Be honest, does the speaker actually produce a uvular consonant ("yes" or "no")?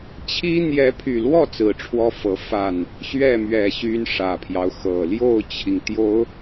no